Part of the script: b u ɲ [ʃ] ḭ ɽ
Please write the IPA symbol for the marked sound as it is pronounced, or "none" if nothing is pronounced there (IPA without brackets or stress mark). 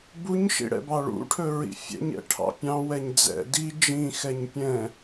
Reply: ʃ